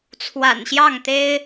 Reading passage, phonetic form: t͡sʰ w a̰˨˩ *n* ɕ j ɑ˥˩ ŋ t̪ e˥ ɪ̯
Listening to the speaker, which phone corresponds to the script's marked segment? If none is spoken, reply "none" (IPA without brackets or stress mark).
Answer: n